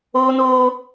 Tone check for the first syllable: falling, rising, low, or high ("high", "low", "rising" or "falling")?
high